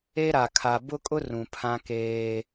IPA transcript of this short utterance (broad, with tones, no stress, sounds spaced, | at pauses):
e˦ ɾ a˨ kʰ a˨ b ʊ˦ kʼ ʊ˦ r ũ˨ pʰ ã˦ k eː˦